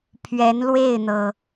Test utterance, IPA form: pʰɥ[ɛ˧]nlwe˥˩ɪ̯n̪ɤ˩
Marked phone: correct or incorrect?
incorrect